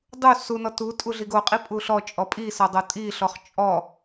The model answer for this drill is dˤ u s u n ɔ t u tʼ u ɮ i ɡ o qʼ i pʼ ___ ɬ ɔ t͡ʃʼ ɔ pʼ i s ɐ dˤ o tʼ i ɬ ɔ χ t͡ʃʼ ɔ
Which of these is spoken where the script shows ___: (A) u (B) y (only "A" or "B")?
A